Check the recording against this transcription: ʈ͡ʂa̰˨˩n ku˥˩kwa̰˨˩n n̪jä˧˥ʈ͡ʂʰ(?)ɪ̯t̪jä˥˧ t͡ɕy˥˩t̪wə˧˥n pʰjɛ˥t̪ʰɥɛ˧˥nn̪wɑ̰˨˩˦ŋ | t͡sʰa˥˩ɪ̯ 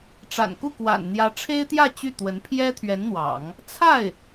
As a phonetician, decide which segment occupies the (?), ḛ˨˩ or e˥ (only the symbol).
e˥